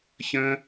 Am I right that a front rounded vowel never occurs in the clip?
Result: yes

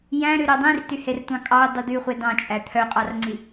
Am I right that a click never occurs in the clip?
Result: no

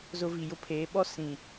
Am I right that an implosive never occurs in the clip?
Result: no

